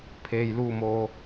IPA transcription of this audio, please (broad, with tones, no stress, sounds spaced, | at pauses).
pʰ eː˩ j l uː˧˩ m o˩